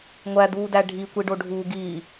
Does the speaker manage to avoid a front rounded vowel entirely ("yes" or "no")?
yes